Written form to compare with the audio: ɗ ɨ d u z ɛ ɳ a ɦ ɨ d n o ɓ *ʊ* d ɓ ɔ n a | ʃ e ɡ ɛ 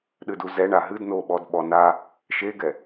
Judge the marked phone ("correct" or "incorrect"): incorrect